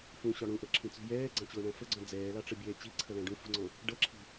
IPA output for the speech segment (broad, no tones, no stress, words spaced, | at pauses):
fũɕɒ ɽũʔʌǁʰĩt͡sṳ jɛːɡ͡ǀɑ̃t͡ɕʊːɳæ̃ fəɡ͡ǀɔ̃ d͡zɛːlɑʈ͡ʂəbʲɛː t͡ɕiǀʰʌlæ̃ ɖũfṳŋ͡ǀɔ̃ | ɖʌǁʰi̤